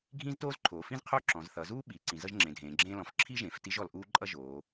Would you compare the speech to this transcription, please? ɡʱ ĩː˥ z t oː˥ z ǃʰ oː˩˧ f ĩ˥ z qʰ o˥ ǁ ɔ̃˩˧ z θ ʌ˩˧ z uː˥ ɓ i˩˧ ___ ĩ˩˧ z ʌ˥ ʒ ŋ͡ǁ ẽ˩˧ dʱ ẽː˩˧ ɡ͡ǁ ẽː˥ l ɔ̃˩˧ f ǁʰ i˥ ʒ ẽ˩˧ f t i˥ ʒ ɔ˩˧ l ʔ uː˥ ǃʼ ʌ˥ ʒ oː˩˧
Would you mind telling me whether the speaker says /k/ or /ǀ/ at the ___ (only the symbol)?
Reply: ǀ